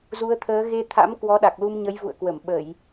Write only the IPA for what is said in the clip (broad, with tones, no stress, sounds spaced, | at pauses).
z u˨˦ ə̯ t̪ʰ əː˨˦ ɣ e˧ t̪ʰ a̰˧˥ m k w ɔ˨˦ ɗ a˨˩ k̚ l u˧ m ɲ ə˨˦ j v ṵ˧˨ ə̯ k w ə˧˩ m ɓ ə˧˩˨ j